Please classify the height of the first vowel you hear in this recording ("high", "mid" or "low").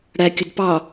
low